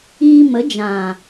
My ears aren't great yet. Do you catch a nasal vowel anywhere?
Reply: yes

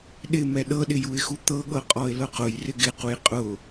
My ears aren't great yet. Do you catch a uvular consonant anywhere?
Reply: yes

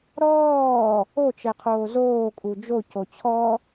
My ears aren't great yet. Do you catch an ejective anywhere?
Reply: yes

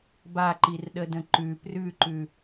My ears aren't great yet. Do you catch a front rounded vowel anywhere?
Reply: no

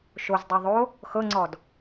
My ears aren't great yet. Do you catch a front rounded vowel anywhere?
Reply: no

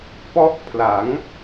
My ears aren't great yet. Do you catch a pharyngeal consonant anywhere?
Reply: no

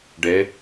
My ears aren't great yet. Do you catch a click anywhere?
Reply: no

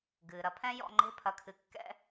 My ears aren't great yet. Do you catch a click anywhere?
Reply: yes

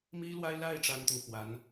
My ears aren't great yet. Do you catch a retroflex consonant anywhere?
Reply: yes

